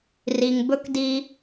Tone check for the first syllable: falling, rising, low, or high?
low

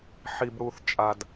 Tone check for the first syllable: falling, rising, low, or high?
low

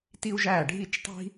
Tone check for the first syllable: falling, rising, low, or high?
high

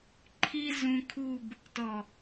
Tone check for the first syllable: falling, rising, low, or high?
high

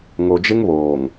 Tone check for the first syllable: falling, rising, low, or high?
low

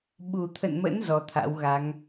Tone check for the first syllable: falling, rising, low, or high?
low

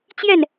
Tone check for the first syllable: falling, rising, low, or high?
falling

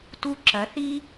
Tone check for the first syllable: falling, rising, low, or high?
high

